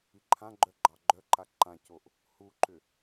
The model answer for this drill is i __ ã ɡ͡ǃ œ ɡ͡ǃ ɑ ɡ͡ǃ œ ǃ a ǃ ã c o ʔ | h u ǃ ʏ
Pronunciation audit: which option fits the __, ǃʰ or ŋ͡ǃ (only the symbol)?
ǃʰ